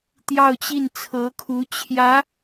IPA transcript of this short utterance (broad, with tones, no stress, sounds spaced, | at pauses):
t̪ j ɑ˥˧ ʊ̯ t͡ɕ i˥˩ n t͡sʰ ɤ˧˥ kʰ u˧˥ t͡ɕʰ j ä˧˥